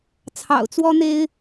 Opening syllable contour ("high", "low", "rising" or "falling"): low